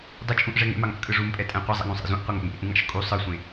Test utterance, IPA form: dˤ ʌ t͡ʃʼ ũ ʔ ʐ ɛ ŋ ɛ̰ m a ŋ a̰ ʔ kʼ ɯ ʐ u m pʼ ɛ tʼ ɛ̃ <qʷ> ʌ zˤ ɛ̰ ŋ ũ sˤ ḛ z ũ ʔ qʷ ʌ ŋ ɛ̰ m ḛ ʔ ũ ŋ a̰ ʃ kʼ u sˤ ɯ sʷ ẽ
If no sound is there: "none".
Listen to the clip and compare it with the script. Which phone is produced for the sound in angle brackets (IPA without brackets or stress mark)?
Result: qʷ